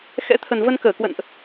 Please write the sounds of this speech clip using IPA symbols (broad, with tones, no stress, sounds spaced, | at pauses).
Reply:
x ɛ̰˧˥ t̪ʰ ə˨˩ n v ə˧ n k əː˧˩ k w ə̰˧˨ n ʔ